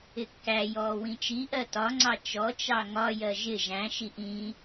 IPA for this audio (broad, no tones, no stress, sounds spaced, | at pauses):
ɪ kː æ j ɔː w ĩ t͡ʃ i ʔ ɜ t ɒ ŋ͡ǀ ɑ t͡ʃ ɔ t͡ʃ ɑ ŋ ɒ j ɜ ʒ ɪ ʒ æ̃ ʃ i ʔ ĩ